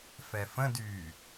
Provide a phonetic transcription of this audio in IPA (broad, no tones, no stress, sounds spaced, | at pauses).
f ɛ f ə̃ d y